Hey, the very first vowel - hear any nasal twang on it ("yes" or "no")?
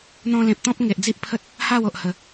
yes